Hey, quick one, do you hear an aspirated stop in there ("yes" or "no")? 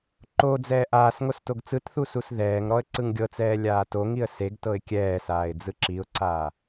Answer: no